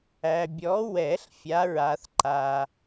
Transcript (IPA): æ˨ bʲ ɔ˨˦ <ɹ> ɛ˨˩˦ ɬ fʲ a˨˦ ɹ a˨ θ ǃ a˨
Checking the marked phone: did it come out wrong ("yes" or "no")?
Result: yes